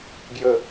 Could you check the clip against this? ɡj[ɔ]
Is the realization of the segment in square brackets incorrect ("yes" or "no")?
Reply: yes